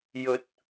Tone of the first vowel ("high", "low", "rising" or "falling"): rising